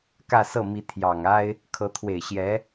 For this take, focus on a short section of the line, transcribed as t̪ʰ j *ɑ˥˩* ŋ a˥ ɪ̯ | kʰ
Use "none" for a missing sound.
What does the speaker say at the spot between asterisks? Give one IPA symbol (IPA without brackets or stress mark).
ɑ˨˩